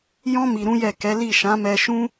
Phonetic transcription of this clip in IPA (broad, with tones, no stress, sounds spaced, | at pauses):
j ɔ̃˦ m i˧ ɾ ũ˦ j ɛ˦˨ k ɛ˨˦ l i˦˨ ʃ ã˨˦ m ɛ˧ ʃ ũ˦